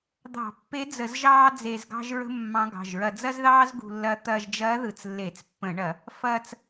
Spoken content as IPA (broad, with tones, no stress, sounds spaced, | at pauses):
d̪ ɑ̤˧˩˧ pː e˧˥ d͡z ə˧˩˧ z ʒ ɑː˥ d͡z e˧ z ɡ ɑ̤˥ ʒ ɹ ə̤˥ mː ɑ̃˧˥ ɡ ɑ̤˩˧˩ ʒ ɹ ɐ˧ d͡z ɐ˥ z ð ɑː˥ z ɡ ṳ˧ lː ɐ˧˥ t̪ ɐː˧ ʒ d͡ʒ ɐː˧˥ ð ɯ˧˩˧ t͡s lː e˧˩˧ t͡s pː ə̃˧˩˧ ɳ ɐ˧˩˧ | f ɐː˧ t͡s